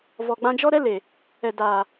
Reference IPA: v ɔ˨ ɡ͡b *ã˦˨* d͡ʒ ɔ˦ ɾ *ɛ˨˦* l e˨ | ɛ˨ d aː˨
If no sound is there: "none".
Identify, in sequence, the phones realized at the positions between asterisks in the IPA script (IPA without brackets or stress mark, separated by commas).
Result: ã˧, ɛ˦